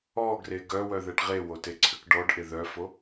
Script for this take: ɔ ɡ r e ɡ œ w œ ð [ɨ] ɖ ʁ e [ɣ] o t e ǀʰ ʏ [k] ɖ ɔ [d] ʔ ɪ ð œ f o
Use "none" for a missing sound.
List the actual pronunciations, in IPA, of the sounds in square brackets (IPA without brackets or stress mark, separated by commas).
ɛ, w, k, ɖ